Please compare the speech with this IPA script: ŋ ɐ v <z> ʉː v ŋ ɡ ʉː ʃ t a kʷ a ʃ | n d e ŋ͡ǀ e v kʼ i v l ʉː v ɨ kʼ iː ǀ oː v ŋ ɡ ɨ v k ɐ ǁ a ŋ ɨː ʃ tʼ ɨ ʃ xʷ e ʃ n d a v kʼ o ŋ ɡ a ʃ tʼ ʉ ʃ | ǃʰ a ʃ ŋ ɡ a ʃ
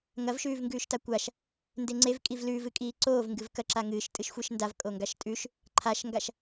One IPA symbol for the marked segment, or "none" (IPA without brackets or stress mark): ʃ